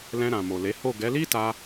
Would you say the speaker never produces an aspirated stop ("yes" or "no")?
yes